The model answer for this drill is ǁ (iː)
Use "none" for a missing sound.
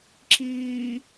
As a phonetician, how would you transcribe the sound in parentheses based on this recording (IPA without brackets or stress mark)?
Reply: iː